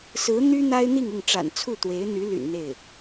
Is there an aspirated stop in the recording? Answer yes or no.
yes